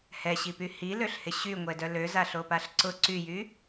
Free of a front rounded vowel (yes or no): no